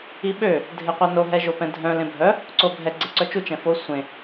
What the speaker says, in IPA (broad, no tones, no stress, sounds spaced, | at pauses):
i ɓ ø | dʱ e qʷ ɛ n o ɦ ɛ ʒ o p ɛ̃ dʱ œ̃ l ẽ bʱ œ | ǀ o bʱ ɛ ɡ͡ǀ e ǀ œ t͡ʃ u t͡ʃ ɛ̃ f o sʷ ẽ